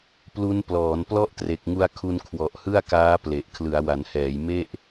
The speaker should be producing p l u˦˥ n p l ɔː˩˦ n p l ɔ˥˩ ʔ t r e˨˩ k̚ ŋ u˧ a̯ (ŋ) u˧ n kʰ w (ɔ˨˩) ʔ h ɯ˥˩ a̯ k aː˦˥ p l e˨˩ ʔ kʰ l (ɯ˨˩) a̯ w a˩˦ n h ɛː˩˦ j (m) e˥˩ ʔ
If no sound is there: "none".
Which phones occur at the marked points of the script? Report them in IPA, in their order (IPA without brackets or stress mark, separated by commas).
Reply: kʰ, ɔ˨˩, ɯ˩˦, m